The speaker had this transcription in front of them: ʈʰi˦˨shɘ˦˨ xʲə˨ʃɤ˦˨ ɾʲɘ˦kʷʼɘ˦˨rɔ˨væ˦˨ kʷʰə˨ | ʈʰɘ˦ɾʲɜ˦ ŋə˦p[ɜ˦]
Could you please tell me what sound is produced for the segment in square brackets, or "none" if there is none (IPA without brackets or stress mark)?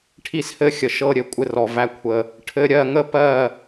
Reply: ɜ˦˨